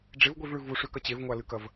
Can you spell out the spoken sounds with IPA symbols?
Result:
ɖ͡ʐ e v ɡʷ i v ɭ ʉ v u ʂ ʉ k ɐ t͡ɕ e v ŋʷ a l ɨ k ɐ v

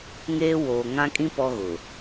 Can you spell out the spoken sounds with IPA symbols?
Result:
ŋ eː˦ w oː˨ ŋ ã˦ kʼ ĩ˦ p ɔ˦ ɣ ʊ˨

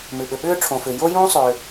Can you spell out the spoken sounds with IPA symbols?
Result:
m ʉ˩ ɓ ʏ˩ ɓ ʏː˥ ʈ͡ʂʰ õ˩ f ʏː˩ j o˥ j ũː˥ sˤ ʏː˩

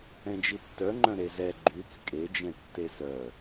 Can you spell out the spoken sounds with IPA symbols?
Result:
ɛ̃ d͡ʒ i tː œ ŋ͡ǃ œ̃ ɾ e z ɛ ɡ͡ǃ y t͡s kʼ e d͡ʒ ɛ̃ tː e s œ

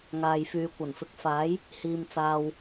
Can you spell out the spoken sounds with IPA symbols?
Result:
ŋ aː˧ j f yː˧ kʷ ɐ˨˩ n f ɪ˨ k̚ f aː˨˥ j | h iː˨ m t͡s aː˨ w

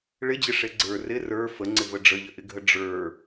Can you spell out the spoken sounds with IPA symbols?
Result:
ɭ ɪ d͡ʑ ɪ ʂ e ɡ͡ǀ ə˞ r ɪ r ə˞ f ə ŋ͡ǀ ɪ v ə ɖ͡ʐ ə ʎ ə ʔ ɪ ɡʱ ə ɖ͡ʐ ə˞

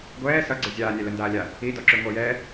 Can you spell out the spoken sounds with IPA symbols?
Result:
ɡʷ ɛː s ʌ ɡ͡ǀ ə zʲ aː nʲ ɛ l ə n d aː lʲ a | i d ɔ ǁ ʉ ŋʷ ʌ j ɛ

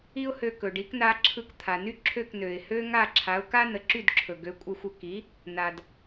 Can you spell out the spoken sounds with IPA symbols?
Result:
i˥ ʊ̯ h ø˧ k ɵ˩ ɖ i˩˥ k n a˧ ǁʰ ɯ˧ k t̪ʰ a˩ n y˥ ǁʰ ø˥˩ k n ø˩ ɪ̯ h ø˥ ŋ a˥˩ ǁʰ a˩˥ ʊ̯ k a˥ n ə˩˥ ǁ y˥˩ d ǁʰ ɵ˩ ɡ ø˩˥ kʷʼ ə˧ xʷ ə˧ k i˩˥ | n a˩ d

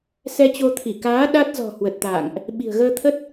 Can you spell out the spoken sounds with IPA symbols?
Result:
s ɛ˧ t͡ɕ o˧ t̪ʰ i˧˩ k aː˨˦ ɗ a˦˥ t̚ z ɔ̤˨˩ h w ə˨˩ t̚ t̪ a̰ː˧˨ ŋ ʔ | ɓ i̤˨˩ ə̯ ɣ əː˧ t̪ʰ ə˦˥ t̚

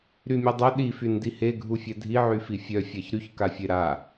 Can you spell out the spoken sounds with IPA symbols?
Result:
ɾ y mʲ œ dˤ œ ɗ i f y n d i h e ɡʱ u fʲ ɛ dʱ i ʕ y f i fʲ œ fʲ a ç ɾ y ç k a fʲ e ɾ a

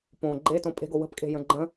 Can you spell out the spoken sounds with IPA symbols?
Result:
p õ ɡ͡ǃ e t õ pʼ e̤ ɡ o w ə̤ p kʼ e̤ j ə̃ ɡ͡ǃ ə̃

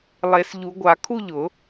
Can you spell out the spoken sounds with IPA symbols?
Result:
lˠ e˨˩˦ s ʎ u˨˩˦ ɡʷ a˨˩˦ kʰ u˥˧ ʎ ʊ˨˩˦

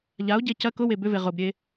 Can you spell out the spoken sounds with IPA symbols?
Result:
ʎ a o̯ ɟ e c ɐ k ʊ w e b ʏ v e ʁ ʊ b ɾʲ e

